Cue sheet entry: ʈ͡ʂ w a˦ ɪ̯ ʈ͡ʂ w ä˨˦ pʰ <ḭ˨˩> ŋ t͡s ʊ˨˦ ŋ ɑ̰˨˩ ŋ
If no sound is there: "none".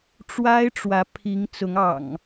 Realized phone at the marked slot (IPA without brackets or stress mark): i˨˦